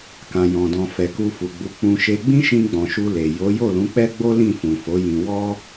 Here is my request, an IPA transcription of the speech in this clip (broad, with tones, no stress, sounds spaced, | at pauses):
k ã˨ j ɔ̃˨ d ɔ̃˨ f ɛ˨ k u˧ f u˨ ɡ͡b u˨˦ k͡p ũ˧ ʃ e˧ ɡ͡b ĩ˦ ʃ ĩ˧ ɡ͡b ɔ̃˨ ʃ u˧ l e˨ j o˨˦ j o˦˨ l ũ˨˦ k͡p ɛ˦ ɡ͡b o˦ l ĩ˦˨ f ũ˨ f o˨˦ j ĩ˧ w ɔ˦